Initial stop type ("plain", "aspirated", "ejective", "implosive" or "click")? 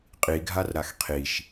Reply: ejective